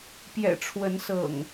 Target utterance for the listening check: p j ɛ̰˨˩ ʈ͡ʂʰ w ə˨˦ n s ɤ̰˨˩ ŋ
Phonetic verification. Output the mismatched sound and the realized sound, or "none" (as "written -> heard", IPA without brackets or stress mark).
none